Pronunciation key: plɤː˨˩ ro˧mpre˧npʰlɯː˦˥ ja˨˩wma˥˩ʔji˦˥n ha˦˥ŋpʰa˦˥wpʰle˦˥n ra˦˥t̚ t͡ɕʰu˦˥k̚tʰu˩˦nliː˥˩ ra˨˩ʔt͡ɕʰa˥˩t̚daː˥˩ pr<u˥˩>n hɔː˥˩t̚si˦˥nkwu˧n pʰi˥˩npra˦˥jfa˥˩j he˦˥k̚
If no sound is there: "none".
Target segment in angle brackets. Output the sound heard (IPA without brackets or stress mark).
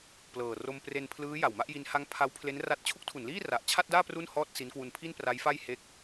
u˥˩